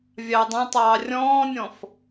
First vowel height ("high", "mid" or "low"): low